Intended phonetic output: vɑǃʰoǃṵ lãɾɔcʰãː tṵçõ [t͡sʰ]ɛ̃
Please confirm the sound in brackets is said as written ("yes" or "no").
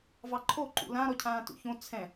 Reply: yes